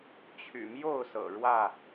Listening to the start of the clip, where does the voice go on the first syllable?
low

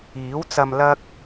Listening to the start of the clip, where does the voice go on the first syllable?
rising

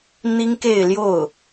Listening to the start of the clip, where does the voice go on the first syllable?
high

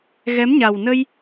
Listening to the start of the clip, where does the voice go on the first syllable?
rising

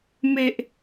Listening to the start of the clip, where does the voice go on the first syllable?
high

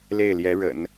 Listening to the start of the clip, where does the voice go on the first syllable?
falling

